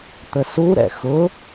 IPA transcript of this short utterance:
t̪ ə s u ɾ ɛ̰ x ʊ

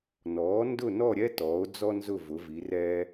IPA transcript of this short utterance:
n ɔː˩˥ n d ʊ˥˨ n ɔ˥˨ ɾʲ ɛ˥ t ɔː˩˥ o̯ d͡z ɔ˥ n z ʊ˥˨ v ʊ˩˥ v i˩˥ r ɛː˥

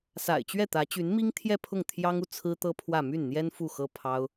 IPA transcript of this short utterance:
s a̰˨˩ ɪ̯ t͡ɕ ɥ ɛ˥˩ t̪ ä˧˥ t͡ɕ y˧˥ n m i˥ ŋ t̪ʰ j ɛ˥˧ pʰ ʊ˥˩ ŋ t̪ʰ j ɑ˥ ŋ u˨ t͡sʰ ɹ̩˥ t̪ ɤ˥ pʰ w ä˥˧ m y˥˩ n n̪ j ɛ˥ n f u˥˩ x ɤ˥ pʰ ɑ˥ ʊ̯

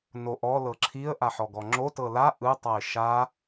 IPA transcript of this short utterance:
n o ʔ ɔ l ɤ ǁʰ i ə̯ ʔ a ħ ɔ ɡ ɔ ŋ͡ǁ o t ɤ l a ʔ ɯ tˤ a ɪ̯ ʃ a

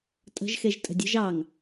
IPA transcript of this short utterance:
tʼ ə̤ ʒ x e ʒ tʼ ə̤ dʲ ə̤ ʒ ɑ ŋ

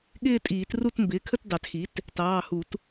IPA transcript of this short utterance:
ɠ ɪː˥˧ tʼ iː˨˩˦ t r u˥˧ t m b ɪː˩˥ kʰ ə˥˧ t d ɑ˨˩˦ t x i˩˥ t | t ɑː˩˧˩ h u˨˩˦ t

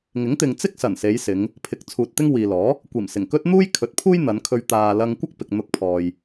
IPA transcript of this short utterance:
ŋ ɪ˨˥ ŋ t̪ ɪ˨ ŋ t͡s ɪ˥ k̚ s ɐ˨˩ n s e˨˧ j s ɪ˨˧ ŋ | pʰ ɪ˨˥ k̚ t͡sʰ uː˨ t̚ t̪ ɪ˥ ŋ w iː˨ l ɔː˨˥ | kʷ iː˨˩ m s ɪ˨˩ ŋ k ɵ˥ t̚ n̪ uː˥ j kʰ ɵ˨˥ t̚ pʰ uː˥ j n̪ ɐ˨˧ n kʰ ɵ˧ ɥ t̪ aː˨ l ɐ˧ ŋ kʷ ɐ˥ k̚ p ɪ˨ k̚ n̪ ʊ˧ k̚ pʰ ɔː˨ j

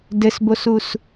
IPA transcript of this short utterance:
d ɘ s b o s u s

